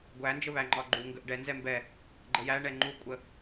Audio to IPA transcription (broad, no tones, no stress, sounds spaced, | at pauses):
ɡʷ æ n d͡ʒ ə β æ ŋ͡ǃ ɒ ɡ͡ǃ u ŋ ɡ ə ʔ ɖ ɛ n z ɛ m b ɛ | ɡ͡ǃ ə j æ ɳ ɛ ŋ͡ǃ u kʷʼ ə